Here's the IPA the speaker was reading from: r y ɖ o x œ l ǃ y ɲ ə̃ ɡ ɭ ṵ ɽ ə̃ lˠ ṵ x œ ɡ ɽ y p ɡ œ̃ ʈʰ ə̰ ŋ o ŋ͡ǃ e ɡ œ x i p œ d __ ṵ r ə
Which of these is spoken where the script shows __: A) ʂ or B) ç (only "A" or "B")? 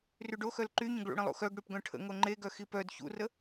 B